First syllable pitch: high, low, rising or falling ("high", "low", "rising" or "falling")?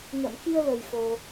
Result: low